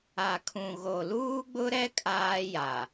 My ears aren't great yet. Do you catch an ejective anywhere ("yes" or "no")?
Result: yes